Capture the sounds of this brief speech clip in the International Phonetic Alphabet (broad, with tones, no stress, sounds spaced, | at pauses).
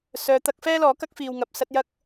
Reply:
s œː˨˧ t̪ ɐ˨˥ k̚ f ɛː˥ l ɔː˨˥ k ɐ˥ k̚ f iː˧ w ŋ ɐ˧ p̚ s ɐ˥ t̚ j ɐ˥ k̚